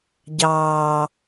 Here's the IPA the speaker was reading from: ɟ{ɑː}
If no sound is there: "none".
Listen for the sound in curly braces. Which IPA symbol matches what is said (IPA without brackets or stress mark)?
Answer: ɑː